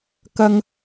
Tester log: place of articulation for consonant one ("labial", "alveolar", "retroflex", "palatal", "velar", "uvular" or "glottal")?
velar